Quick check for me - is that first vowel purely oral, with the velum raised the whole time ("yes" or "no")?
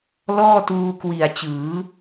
yes